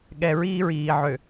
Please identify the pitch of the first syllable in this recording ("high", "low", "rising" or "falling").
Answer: low